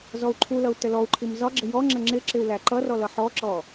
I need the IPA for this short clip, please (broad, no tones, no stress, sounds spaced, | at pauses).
z ɔ u̯ ǃʰ u l ʌ u̯ t ə l ɔ u̯ ǃʰ i m z ɒ ɡ͡ǁ ə j ɔ ŋ͡ǁ ə ŋ͡ǁ ɪ ǁ ɪ u̯ l æ ǃ ʌ r ɔ l ʌ ħ ɔ ǁ ɔ